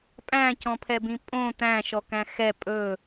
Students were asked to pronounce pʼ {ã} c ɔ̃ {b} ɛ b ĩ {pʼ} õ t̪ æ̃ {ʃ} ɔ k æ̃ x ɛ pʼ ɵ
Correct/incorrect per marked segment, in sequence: incorrect: æ̃, incorrect: pʰ, correct, correct

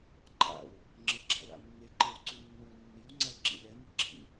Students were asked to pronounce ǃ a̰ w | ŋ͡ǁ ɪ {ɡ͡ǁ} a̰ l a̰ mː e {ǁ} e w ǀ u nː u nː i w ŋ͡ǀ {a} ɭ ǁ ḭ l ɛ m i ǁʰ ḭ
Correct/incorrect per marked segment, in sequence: correct, incorrect: ǃ, correct

